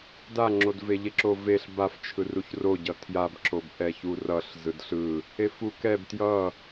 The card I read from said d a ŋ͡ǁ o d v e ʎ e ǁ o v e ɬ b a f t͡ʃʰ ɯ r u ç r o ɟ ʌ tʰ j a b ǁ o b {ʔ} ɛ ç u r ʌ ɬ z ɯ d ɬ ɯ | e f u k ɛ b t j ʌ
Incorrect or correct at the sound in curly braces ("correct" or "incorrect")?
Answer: correct